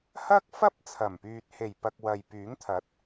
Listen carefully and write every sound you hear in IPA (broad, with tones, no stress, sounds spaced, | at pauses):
h ɐ˥ k̚ f ɐ˥ p̚ t͡sʰ ɐ˨˩ m p yː˨ t̚ h e˨˩ j p ɐ˨ k̚ w ɐ˨ j p yː˨˥ ŋ t̪ʰ ɐ˨˥ t̚